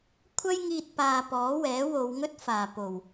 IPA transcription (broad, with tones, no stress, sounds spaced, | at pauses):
kʷʰ ɐ˥ j ŋ iː˧ t̚ p aː˨ p ɔː˨˥ w ɛː˨˥ w o˨˧ w ŋ ɵ˥ t̚ f aː˨˩ p o˨˩ w